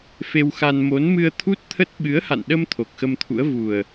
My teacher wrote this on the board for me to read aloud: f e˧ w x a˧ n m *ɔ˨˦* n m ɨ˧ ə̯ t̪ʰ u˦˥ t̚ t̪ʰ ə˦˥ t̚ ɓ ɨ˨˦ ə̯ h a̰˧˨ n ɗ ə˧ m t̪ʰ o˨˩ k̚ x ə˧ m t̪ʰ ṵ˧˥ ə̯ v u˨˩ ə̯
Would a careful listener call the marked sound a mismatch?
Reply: yes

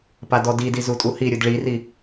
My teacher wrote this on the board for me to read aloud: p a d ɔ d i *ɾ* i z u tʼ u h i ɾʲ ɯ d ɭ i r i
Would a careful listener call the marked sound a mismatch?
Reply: yes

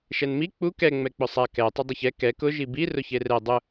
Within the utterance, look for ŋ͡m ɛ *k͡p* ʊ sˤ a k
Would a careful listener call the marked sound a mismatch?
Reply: no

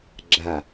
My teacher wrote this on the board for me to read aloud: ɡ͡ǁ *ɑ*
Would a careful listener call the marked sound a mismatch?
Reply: yes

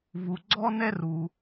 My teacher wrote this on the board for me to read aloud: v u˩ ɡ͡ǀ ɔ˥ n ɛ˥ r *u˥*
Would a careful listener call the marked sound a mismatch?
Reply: yes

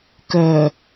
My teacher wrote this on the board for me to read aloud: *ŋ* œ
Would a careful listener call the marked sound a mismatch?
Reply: yes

